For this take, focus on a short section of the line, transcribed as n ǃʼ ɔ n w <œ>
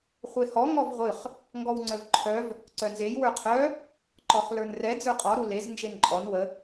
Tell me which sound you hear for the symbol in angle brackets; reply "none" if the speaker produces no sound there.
ə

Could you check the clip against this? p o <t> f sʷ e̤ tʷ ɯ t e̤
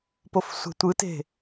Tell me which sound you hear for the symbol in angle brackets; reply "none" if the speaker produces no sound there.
none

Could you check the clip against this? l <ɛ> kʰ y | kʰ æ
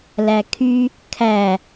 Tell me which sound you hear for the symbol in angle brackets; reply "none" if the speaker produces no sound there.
æ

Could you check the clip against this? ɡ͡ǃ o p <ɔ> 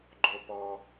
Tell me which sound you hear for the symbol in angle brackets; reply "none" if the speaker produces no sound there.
ɔ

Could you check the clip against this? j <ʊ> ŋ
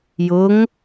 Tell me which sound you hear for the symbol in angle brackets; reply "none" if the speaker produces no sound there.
ʊ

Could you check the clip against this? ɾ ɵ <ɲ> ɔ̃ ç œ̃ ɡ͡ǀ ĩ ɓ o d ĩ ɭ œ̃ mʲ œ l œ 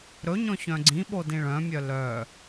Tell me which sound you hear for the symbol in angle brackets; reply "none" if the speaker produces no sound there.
ɲ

